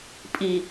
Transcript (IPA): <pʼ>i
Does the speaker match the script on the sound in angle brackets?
yes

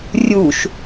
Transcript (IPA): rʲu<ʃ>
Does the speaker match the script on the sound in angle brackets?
yes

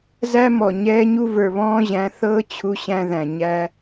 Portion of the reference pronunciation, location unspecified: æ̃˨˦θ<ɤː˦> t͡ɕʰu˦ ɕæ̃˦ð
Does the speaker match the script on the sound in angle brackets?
yes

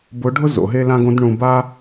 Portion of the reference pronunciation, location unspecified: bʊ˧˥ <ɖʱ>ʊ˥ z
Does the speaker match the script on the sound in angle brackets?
yes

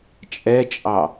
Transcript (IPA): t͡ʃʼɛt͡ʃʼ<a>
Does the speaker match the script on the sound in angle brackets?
no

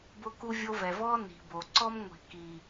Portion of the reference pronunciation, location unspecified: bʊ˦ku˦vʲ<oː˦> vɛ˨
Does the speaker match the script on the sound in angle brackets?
no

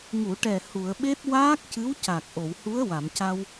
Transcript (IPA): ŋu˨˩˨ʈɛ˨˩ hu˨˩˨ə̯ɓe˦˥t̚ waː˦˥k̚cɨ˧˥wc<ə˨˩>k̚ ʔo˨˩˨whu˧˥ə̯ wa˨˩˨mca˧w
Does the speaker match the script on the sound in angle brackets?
no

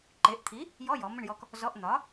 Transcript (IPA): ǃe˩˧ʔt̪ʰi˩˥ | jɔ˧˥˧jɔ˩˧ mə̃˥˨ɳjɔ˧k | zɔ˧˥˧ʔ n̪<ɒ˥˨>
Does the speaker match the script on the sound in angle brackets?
no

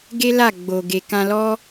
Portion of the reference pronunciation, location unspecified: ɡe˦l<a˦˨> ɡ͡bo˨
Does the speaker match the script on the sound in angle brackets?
yes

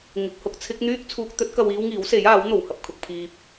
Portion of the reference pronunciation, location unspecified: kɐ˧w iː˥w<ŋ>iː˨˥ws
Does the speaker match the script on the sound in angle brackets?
yes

